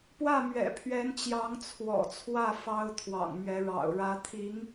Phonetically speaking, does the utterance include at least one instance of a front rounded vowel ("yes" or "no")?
no